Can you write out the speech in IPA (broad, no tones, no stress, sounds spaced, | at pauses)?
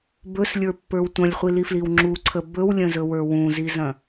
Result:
b ɵ s lʲ ə˞ pː ə˞ w tʷ ɐ̃ lʲ χʷ i l i f l i w ŋ͡ǁ u ǀʰ ə b ɵ w lʲ ə̃ z ɵ w ə˞ w ũ z i z ɐ̃